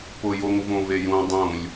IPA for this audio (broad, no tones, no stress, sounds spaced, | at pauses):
p ʊ j o ŋ v õ v e j ũ dˤ ũ lʲ